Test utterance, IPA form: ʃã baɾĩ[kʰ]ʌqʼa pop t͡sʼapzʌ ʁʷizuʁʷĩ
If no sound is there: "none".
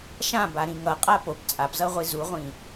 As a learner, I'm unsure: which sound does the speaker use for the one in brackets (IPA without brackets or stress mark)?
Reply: ŋ